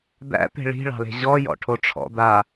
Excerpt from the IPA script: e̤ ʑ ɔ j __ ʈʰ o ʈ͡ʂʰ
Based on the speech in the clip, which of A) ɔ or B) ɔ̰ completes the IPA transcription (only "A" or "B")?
B